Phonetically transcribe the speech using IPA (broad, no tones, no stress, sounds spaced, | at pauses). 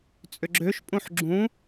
t͡sʼ ʏ ɡ͡ǁ ø ʃ pʼ ũ ħ ɡ͡ǁ ũ